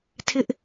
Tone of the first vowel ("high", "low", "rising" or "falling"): high